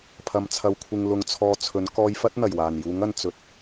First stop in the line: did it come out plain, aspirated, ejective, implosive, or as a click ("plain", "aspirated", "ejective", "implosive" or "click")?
aspirated